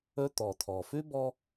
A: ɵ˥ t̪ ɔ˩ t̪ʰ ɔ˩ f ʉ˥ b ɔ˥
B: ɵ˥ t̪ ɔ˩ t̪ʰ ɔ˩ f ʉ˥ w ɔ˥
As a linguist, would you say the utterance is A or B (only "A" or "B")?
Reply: A